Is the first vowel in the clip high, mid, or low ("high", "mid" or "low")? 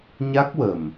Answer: low